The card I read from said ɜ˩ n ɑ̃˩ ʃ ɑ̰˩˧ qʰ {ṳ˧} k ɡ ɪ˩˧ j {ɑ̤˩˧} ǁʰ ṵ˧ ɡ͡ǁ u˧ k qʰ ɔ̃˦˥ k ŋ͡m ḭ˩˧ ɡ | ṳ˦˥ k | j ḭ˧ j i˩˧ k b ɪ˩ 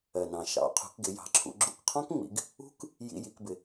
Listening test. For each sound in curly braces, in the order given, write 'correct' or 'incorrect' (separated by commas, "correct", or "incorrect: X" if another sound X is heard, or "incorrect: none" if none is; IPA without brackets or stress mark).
incorrect: ṳ˩˧, correct